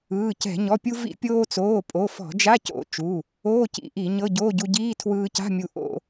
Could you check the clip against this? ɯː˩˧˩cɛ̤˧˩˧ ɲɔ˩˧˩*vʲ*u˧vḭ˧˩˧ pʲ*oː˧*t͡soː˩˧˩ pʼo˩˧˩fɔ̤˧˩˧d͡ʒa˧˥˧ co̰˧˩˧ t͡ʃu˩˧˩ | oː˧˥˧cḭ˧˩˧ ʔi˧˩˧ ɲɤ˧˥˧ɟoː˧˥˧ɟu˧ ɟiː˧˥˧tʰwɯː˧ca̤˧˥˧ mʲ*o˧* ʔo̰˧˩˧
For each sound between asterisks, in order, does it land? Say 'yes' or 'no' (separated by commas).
no, yes, no